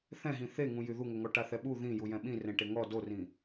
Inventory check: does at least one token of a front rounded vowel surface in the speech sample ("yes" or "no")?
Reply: yes